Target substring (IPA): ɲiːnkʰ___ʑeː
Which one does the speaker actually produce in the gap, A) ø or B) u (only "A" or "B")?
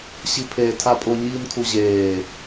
B